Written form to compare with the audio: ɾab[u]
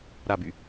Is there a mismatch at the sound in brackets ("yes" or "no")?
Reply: yes